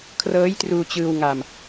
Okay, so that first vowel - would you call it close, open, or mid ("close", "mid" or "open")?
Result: mid